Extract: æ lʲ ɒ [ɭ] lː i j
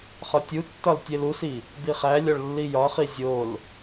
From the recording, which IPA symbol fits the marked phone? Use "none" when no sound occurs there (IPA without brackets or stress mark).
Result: ɭ